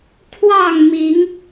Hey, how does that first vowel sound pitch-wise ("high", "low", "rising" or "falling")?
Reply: falling